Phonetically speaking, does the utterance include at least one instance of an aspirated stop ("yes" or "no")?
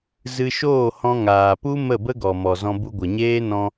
no